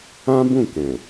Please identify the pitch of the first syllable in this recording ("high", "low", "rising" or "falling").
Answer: high